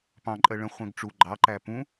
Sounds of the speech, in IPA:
p ɑ̃ ǃʼ ɜ ɭ ə̃ χʷ ɛ̃ ɡ ʈ͡ʂ u ɡ͡ǃ ɑ ǃ æ p ũ

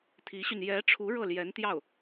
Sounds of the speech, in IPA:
t̪ʰ i˧˥ ɕ y˧ n j ɛ˧˥ ʈ͡ʂʰ u˧˥ ɻ ɤ˥˩ l j ɛ˧˥ n t̪ j ɑ˥˩ ʊ̯

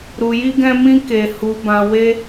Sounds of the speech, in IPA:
ɾ u˧ j i˦ ɡ ɛ̃˦ m ĩ˦ k e˧ h u˧ b ã˧ w e˦

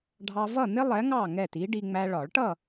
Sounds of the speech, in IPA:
ɖʱ ɑ˧ v ʌ˥˨ n̪ ɪ˥ lˠ ɛ˨˥ ŋ ɑ˥˨ ŋ ɛ˥˨ t i˨˥ ɖ i˧ ŋ͡m æ˧ ɭ ɒ˨˩˦ ɭ ʈ ʌ˥˨

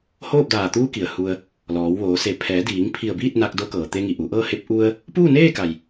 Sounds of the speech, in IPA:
h oː˥˨ p̚ d aː˧˩ t̪ uː˧˥ k i˩ ə̯ h u˧ ə̯ | l ɔː˩˧ w ʋ oː˩˧ s e˧˩ pʰ ɛː˩˧ d iː˩˧ ŋ pʰ i˧˩ ə̯ b iː˥˨ t̚ n a˧ k̚ d o˧˥ k ɤː˩ t̪ e˧ ŋ i˩ ʔ u˩˧ ʔ ɤː˥˨ h e˧ p̚ ʔ u˧ ə̯ | p uː˥˨ n eː˥˨ k a˩ j

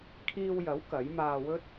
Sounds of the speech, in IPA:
kʰ iː˧ w j ɐ˨˥ w k ɐ˨˥ j m aː˧ w ɵ˥ t̚

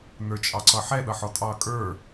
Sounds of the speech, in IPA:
n ə˞ t͡ʃʼ ɑ ǀ ʌ ħ ɛ ɗ ʌ ħ ɔ tʼ ɑ kʼ ə˞

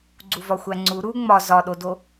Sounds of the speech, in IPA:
ɡ͡ǀ u v ɒ xʷ æ ŋ͡ǀ u ɾ u ŋ͡m ɒ z ɒ ɗ o d o

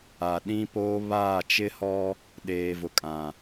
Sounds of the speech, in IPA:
a˨ ɗ ĩ˦ p oː˦ β aː˦˨ t͡ʃ ɪ˦ h ɔ˦ | ɗ eː˨ v ʊ˨ kʼ ã˨

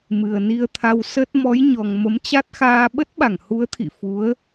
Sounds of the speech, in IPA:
m ɨ˨˩ ə̯ n i˧ ə̯ t̪ʰ a˧ w s ə˦˥ t̚ m ɔ˨˦ j ɲ ɔ˨˩ ŋ m ə˨˦ m t͡ɕ a˦˥ t̚ x aː˧ ɓ ə˦˥ t̚ ɓ a˧˩ ŋ h u˨˦ ə̯ t̪ʰ ḭ˧˨ f u˨˦ ə̯

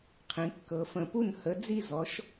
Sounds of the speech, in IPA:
qʰ ĩ˩˧ kː ɤ˩˧ f ə̃˩˧ p u˥˩ n h ə˨˥ d͡z i˥˩ z ɔ˨˥ ʃ

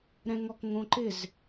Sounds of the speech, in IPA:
ɾ ɛ̃ ŋ ɔ k ŋ õ ǃ ɪ z

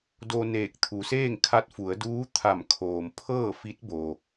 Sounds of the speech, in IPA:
d o˧ n eː˧˩ k̚ t̪ʰ u˩˧ s eː˥˨ ŋ kʰ a˧˥ t̚ f u˩˧ ə̯ d uː˧˥ t̪ʰ a˧˩ m kʰ oː˩ m pʰ ɤː˥˨ f i˧˥ t̚ b o˩

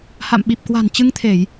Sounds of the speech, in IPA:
h a̰˧˨ m ɓ i˨˩ p̚ k w a̤˨˩ n t͡ɕ ɨ˧ ŋ t̪ʰ e˧˩˨ j

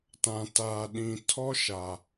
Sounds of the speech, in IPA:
t ã˨ t aː˨ ɗ ĩ˨ tʰ ɔ˦ ʃ a˨

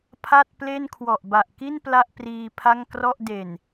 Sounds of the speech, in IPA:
pʰ a˥˩ t̚ p l e˥˩ n kʰ w ɔ˨˩ ʔ b a˨˩ ʔ k i˥˩ n p l a˥˩ ʔ p r iː˧ pʰ a˥˩ ŋ k r ɔ˥˩ ʔ d e˨˩ n

